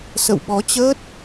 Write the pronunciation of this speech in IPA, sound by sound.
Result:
sə̰˧˨wɓɔ˨˦t͡ɕəː˦˥t̚

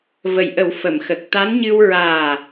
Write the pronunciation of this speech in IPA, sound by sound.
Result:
və˨˩jʔə˨˩˦w fə˨˩˨mxə˨˩k̚ t̪a˧˥nɲɨ˧w ɹaː˨˩

